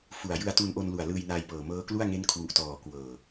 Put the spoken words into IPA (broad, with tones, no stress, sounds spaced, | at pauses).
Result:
f u˨˩ a̯ j ɯ˧ a̯ t u˧ n ʔ o˧ n l u˨˩ a̯ l ɯː˧ j n aː˧ j p ɤː˨˩ m ɤː˦˥ k l u˥˩ a̯ ŋ e˦˥ n kʰ w u˨˩ ʔ t ɔː˨˩ k w ɤː˨˩